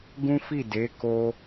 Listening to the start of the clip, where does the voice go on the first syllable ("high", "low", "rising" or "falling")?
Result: high